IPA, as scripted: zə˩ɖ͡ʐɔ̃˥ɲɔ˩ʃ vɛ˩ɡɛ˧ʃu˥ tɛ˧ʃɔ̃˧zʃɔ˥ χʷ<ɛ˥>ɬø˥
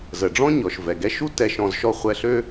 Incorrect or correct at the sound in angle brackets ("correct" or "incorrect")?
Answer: incorrect